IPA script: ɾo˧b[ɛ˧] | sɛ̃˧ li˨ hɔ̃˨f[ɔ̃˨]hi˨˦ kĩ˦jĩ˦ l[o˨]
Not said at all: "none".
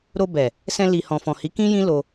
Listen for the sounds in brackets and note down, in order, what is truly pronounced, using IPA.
ɛ˨, ɔ̃˨, o˧

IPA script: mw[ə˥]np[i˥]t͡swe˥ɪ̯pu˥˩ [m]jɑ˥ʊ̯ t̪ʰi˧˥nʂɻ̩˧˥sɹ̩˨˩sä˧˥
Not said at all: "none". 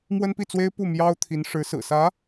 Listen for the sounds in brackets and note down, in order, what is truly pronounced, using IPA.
ə˥, i˥˩, m

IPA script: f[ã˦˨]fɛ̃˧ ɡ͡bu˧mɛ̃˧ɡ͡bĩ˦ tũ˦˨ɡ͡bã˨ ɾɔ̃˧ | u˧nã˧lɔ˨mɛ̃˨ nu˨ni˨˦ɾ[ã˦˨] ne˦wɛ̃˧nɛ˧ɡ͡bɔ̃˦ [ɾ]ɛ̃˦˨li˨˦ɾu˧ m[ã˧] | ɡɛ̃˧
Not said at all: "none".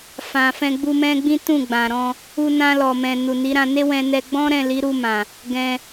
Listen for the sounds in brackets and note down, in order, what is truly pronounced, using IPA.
ã˨, ã˧, ɾ, ã˨

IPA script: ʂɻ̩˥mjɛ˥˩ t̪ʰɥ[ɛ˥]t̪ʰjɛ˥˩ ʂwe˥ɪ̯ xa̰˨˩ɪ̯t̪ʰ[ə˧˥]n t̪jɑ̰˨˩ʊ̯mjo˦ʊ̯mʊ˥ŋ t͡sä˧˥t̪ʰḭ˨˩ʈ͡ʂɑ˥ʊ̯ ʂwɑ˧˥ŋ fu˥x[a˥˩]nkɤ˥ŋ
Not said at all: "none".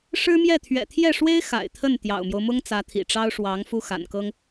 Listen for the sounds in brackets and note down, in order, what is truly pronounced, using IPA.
ɛ̰˨˩, ə˥˩, a̰˨˩

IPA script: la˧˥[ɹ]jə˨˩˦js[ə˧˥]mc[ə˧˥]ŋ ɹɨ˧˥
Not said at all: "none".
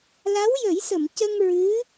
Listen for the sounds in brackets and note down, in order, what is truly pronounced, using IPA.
w, ə˨˩˨, ə˧

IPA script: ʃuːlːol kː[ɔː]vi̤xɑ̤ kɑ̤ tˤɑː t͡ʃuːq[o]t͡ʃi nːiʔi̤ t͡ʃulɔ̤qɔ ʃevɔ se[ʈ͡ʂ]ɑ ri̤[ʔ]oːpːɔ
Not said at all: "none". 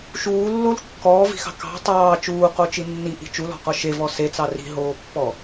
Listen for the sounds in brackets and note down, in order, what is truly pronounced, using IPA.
ɔː, o, t͡s, ɦ

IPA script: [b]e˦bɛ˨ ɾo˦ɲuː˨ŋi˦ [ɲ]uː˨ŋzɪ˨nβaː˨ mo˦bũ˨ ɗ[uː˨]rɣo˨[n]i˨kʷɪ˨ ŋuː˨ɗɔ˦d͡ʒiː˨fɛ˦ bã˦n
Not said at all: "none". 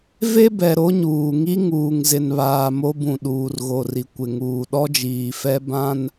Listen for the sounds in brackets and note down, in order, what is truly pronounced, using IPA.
v, ŋ, uː˨, r

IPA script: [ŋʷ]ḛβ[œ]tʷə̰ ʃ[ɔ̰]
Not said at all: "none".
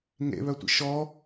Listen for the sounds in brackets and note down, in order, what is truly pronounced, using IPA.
ŋ, œ, ɔ

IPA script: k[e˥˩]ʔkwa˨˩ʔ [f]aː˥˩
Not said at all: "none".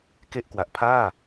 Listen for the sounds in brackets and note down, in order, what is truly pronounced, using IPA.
e˥˩, pʰ

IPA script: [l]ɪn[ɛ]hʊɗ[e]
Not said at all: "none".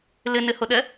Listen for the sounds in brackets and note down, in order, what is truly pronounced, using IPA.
l, ɪ, ɛ

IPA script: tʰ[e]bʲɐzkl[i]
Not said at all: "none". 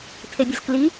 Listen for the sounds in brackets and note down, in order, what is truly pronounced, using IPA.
e, i

